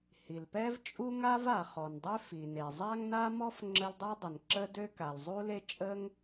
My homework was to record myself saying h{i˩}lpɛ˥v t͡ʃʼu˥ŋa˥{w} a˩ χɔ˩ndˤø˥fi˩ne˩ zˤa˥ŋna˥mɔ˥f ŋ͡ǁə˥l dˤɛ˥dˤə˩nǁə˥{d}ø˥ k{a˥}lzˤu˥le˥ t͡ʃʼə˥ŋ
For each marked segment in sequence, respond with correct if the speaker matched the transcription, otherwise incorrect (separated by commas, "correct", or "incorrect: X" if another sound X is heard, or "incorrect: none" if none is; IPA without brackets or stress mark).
correct, incorrect: v, correct, incorrect: a˩